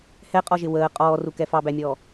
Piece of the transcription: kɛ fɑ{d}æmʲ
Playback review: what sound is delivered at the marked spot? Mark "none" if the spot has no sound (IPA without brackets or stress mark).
b